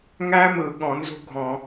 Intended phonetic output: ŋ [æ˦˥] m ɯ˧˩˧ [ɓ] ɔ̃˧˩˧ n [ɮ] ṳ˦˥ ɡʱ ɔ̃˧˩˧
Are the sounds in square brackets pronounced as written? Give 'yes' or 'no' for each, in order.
yes, no, no

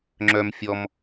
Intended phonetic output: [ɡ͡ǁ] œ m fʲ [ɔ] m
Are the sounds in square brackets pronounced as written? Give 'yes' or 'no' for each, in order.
no, yes

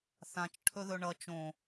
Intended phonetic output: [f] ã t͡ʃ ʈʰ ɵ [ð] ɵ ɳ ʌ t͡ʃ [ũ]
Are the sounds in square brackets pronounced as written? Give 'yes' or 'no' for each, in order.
no, yes, no

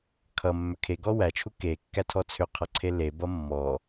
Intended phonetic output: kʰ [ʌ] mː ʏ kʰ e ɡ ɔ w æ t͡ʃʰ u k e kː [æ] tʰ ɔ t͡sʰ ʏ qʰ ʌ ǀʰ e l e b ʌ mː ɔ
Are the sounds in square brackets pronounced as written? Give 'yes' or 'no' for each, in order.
yes, yes

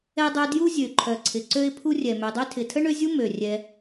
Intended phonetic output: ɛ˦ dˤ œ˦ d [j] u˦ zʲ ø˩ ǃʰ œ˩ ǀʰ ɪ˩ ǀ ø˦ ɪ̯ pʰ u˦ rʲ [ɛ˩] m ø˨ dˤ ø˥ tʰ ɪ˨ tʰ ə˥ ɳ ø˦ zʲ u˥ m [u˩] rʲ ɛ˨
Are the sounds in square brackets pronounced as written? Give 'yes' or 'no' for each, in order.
yes, yes, no

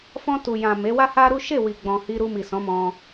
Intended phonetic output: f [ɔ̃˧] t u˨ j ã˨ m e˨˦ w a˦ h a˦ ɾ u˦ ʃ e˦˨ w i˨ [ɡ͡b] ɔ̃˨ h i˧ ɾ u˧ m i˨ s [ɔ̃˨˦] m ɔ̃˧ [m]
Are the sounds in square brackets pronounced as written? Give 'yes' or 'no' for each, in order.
yes, yes, yes, no

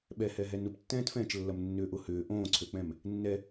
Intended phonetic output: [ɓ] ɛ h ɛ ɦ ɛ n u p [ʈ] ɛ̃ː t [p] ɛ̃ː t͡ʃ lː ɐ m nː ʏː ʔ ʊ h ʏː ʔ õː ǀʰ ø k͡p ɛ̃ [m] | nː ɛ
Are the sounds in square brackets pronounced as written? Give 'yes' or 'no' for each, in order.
yes, no, no, yes

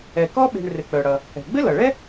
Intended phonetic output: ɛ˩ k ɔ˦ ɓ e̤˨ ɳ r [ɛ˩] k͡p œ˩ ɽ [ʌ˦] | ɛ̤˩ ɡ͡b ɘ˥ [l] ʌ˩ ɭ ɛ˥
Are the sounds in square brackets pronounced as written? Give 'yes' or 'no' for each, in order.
no, no, yes

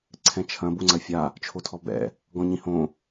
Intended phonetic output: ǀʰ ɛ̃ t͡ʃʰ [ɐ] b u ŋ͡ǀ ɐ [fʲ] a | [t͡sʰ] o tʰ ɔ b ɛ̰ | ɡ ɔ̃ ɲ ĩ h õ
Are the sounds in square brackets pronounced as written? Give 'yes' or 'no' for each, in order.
no, yes, no

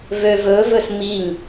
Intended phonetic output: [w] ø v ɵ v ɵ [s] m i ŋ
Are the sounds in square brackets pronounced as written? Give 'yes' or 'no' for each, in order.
no, yes

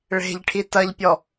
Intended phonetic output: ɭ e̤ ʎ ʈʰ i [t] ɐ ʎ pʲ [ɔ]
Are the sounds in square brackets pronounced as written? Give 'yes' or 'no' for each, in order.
yes, yes

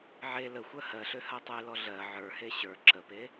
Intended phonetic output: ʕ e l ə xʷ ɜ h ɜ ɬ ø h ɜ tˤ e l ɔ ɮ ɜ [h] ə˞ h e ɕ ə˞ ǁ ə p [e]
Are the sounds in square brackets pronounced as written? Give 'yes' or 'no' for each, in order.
no, yes

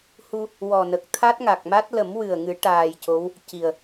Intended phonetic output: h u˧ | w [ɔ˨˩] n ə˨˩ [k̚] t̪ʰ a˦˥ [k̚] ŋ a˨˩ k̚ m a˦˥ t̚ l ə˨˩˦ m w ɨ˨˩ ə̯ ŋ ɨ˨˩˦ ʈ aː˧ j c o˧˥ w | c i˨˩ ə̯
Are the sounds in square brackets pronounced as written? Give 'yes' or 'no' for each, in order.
yes, yes, no

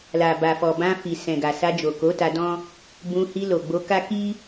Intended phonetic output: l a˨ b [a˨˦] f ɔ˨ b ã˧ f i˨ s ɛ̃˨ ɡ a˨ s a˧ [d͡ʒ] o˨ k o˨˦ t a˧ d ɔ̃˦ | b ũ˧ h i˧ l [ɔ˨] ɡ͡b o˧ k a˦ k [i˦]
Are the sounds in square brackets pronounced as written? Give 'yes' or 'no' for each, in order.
no, yes, no, yes

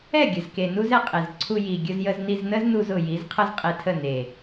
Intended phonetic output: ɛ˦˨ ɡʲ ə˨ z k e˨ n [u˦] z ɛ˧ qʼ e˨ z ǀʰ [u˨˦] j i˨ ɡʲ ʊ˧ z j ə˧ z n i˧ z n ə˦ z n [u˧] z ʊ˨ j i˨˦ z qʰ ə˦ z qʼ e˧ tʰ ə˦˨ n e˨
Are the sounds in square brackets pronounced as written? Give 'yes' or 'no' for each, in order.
yes, no, yes

